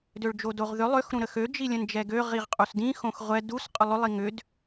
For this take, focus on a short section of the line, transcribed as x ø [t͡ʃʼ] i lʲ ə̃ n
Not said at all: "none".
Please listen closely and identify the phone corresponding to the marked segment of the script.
d͡ʒ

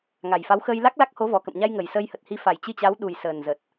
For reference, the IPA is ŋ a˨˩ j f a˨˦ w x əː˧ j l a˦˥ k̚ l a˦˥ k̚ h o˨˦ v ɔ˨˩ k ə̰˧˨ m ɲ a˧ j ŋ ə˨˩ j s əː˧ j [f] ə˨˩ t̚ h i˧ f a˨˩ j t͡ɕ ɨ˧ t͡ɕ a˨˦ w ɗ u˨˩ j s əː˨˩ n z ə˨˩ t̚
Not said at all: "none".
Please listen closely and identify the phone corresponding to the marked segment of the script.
h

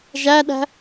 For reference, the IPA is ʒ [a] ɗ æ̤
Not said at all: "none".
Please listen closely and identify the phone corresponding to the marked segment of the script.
æ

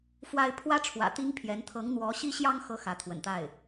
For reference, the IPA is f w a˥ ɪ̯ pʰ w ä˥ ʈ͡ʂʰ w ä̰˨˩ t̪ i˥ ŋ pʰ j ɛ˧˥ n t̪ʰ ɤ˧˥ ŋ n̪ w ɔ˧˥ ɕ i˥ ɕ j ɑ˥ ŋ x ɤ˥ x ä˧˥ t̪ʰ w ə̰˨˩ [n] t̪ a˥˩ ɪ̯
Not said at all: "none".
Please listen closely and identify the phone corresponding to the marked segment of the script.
n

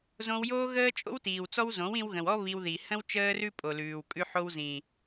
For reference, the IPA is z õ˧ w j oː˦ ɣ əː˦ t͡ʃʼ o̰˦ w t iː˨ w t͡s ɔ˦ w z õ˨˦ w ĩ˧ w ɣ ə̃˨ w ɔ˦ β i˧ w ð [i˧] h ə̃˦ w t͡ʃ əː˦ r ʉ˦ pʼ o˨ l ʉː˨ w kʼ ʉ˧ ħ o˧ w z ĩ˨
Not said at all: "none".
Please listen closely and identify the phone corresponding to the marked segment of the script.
i˨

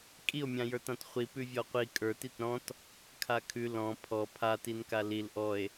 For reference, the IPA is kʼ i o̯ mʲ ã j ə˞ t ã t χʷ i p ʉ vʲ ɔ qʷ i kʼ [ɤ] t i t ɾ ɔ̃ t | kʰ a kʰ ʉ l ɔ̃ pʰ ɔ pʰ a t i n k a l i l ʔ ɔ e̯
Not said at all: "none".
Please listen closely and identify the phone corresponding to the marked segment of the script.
ə˞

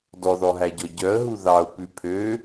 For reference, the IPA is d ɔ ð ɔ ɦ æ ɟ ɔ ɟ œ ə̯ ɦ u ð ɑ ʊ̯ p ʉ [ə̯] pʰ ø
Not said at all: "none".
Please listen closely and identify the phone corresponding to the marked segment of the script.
none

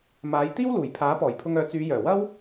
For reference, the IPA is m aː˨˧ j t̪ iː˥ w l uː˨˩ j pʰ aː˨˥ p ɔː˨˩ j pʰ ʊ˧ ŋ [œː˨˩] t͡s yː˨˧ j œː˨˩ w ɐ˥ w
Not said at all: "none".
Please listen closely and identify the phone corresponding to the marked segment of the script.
œː˨˥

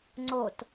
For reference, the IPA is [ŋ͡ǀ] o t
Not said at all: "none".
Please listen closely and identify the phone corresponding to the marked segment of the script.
ŋ͡ǀ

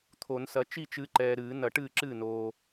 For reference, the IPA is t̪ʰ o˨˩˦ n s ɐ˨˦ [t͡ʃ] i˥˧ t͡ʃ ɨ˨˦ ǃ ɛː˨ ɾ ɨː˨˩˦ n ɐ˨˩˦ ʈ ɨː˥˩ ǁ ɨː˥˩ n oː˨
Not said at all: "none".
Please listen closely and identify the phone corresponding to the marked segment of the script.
t͡ʃ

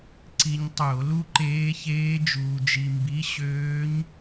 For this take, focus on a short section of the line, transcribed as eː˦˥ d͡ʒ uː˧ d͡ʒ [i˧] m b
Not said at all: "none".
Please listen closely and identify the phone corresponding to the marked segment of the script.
i˧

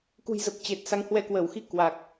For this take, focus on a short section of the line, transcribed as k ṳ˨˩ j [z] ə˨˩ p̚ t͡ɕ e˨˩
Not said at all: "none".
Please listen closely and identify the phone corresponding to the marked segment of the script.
z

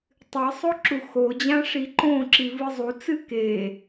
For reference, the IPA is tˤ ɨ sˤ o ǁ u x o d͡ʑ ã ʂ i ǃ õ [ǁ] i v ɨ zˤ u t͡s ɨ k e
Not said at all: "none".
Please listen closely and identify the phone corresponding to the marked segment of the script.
ǁ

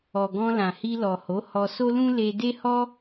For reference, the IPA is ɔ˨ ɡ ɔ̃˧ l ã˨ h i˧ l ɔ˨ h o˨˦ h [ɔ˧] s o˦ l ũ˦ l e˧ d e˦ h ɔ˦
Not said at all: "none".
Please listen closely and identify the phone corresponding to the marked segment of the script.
ɔ˧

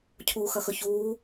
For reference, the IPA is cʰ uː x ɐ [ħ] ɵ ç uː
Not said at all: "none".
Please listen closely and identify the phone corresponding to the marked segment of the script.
x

